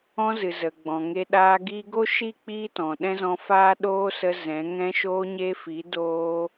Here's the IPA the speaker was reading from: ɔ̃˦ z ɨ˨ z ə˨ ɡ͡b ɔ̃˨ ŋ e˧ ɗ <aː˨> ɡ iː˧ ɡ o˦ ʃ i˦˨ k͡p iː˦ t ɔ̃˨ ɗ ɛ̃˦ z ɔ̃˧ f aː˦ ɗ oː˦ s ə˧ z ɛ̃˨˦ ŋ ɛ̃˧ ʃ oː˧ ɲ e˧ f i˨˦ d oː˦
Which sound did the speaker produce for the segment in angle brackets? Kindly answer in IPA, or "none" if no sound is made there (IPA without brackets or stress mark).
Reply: aː˧